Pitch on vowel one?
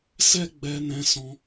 high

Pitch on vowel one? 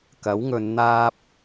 rising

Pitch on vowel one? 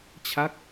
falling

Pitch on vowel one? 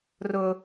high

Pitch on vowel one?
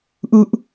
high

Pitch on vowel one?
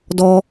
high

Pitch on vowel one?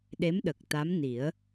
rising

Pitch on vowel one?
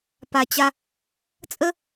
low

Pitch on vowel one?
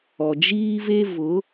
low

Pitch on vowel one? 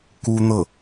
high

